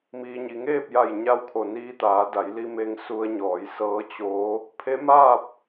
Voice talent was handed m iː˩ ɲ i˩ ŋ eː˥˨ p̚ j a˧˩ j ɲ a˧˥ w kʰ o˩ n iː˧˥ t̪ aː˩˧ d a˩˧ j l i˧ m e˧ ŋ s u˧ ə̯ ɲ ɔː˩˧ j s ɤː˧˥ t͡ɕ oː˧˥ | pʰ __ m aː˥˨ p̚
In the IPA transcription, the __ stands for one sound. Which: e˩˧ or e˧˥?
e˧˥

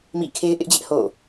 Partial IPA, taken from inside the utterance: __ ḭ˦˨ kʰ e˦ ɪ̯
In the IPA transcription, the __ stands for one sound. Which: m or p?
m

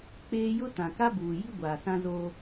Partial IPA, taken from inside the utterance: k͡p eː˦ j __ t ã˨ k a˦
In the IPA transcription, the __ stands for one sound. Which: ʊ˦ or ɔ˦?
ʊ˦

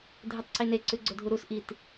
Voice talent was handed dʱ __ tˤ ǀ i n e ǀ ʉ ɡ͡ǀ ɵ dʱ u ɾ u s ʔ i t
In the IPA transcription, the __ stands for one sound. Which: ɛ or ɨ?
ɨ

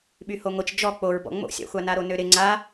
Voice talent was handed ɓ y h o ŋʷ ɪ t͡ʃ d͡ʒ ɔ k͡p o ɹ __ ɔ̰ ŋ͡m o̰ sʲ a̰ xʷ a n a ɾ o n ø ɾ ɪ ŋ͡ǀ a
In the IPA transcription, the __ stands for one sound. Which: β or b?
b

